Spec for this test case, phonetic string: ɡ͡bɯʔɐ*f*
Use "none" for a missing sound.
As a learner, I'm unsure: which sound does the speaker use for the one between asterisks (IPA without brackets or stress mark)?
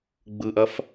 f